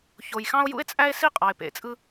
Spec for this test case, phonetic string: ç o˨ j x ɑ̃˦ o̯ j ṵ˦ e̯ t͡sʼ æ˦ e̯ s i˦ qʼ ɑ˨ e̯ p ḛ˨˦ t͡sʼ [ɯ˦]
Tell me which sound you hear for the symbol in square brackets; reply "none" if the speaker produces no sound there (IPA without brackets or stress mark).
ɯ˦